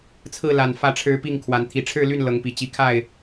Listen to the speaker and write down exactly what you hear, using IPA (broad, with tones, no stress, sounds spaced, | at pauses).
t͡sʰ ɹ̩˥˨ l a˨˩ n f ä˨˦ ʈ͡ʂʰ ɻ̩˨˦ p i˥˨ ŋ kʰ w a˨˦ n t̪ʰ i˨˦ ʈ͡ʂʰ ɻ̩˥˨ l y˥˨ n l ɤ˨˦ ŋ p i˨˩ t͡ɕ i˨˦ kʰ a˥˨ ɪ̯